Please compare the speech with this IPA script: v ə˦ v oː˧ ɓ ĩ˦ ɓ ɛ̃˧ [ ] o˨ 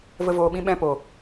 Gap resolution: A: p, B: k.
A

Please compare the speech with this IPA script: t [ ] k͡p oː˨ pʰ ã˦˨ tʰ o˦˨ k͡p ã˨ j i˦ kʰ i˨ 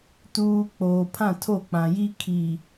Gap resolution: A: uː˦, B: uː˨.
B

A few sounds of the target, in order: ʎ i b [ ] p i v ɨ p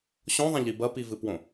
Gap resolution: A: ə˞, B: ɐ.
B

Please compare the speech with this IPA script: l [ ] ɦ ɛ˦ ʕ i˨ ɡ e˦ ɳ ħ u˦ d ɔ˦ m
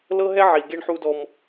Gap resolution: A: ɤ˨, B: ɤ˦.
B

